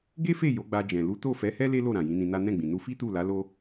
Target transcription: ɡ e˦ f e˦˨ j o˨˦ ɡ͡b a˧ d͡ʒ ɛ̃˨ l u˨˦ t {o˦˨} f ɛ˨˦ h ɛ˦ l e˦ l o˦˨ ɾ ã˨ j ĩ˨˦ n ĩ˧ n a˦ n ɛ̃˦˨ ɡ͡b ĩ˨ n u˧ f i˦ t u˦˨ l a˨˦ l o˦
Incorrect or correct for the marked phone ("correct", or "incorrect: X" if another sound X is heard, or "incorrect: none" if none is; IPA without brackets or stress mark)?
correct